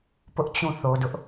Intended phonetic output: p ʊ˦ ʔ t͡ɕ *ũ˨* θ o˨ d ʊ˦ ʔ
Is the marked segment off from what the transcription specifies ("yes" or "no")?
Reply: yes